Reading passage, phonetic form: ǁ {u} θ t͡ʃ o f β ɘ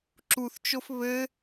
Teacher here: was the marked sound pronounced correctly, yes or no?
yes